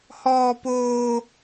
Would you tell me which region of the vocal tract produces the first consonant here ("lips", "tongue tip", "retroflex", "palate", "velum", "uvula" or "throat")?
throat